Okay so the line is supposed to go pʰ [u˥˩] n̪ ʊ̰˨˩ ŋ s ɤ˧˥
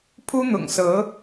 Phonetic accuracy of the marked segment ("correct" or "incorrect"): incorrect